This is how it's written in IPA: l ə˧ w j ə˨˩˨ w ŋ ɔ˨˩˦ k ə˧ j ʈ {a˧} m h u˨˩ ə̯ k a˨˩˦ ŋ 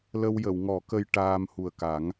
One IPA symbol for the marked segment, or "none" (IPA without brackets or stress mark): aː˧